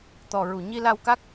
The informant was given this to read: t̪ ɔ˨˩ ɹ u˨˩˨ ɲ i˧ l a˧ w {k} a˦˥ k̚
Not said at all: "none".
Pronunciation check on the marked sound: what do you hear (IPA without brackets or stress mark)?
k